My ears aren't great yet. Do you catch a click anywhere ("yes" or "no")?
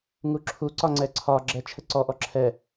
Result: yes